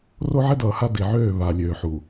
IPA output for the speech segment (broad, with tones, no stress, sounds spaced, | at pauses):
r o˦ ʕ ɛ˦ d ʌː˨ h a˦ d i˨ ʕ øː˦˨ β a˨ lʲ øː˨ ħ u˨